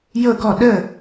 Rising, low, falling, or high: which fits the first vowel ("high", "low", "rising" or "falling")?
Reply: falling